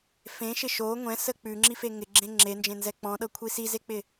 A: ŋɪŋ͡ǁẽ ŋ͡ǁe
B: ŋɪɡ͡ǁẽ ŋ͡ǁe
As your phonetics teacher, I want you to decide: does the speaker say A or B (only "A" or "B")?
B